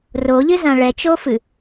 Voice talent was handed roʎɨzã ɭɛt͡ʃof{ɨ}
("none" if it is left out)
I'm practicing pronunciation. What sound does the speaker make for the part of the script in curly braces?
ɨ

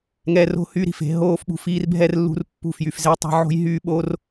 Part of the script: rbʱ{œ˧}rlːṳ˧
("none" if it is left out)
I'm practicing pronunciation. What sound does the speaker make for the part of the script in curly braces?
ɛ˧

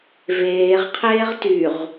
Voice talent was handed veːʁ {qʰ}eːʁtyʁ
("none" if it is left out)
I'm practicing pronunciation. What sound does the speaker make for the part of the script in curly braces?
qʰ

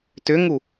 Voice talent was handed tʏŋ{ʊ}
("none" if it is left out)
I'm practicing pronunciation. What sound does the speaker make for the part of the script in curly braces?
u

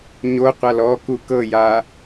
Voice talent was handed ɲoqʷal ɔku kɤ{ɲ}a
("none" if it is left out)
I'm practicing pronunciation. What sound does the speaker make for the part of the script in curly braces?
j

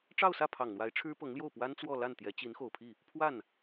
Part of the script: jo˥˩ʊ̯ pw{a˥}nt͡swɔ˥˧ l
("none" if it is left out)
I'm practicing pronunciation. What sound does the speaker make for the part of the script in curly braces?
a˥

